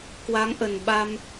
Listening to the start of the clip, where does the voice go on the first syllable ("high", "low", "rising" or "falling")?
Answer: rising